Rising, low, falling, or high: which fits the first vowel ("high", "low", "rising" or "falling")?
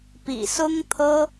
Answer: low